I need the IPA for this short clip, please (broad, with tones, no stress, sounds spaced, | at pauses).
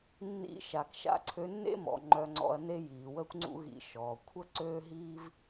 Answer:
nː ḭ˧ ʃ a˨ k ʃ a̰˧ ǀʰ ø˧ nː ḛ˦ m ɔ̰˨ ŋ͡ǃ œ˧ ŋ͡ǀ ɔ̰˧ ɐ̯ n e˦ j iː˨ w əː˦ kʷ ŋ͡ǀ ṵ˦ ɣ ḭ˧ ʃ ɔː˨ kʷʰ ə˦ ǀ øː˦ ɦ iː˦ v